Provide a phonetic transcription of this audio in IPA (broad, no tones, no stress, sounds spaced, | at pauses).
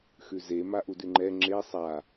x ʉ z e m a ʔ u d ʉ ŋ͡ǃ ɛ ŋ͡ǁ e sˤ a